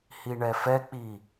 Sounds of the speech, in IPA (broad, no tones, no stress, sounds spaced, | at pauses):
h i ɳ ɛ f ɛ k͡p i